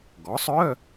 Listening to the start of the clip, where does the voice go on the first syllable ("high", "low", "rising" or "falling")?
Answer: rising